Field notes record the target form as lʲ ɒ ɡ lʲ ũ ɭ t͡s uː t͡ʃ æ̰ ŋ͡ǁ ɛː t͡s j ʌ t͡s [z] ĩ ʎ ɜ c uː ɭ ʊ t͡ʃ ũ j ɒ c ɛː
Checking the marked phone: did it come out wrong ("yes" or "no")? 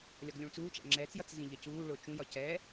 no